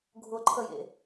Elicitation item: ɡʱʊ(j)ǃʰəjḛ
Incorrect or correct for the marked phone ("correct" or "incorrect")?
incorrect